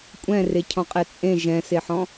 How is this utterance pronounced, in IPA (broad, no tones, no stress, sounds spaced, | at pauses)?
kʷʼ ɛ̃ r e cʰ ɔ̃ qʼ ɛ t͡sʼ ẽ ʒ ɛ̃ s e ħ ɔ̃